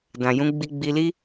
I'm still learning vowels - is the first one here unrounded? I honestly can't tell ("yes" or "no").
yes